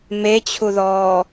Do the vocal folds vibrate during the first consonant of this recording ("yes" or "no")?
yes